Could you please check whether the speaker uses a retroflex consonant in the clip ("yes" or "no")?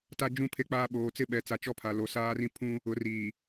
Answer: no